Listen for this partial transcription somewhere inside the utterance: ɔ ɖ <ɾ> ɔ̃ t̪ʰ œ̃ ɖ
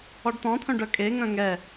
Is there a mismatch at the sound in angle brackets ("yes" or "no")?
yes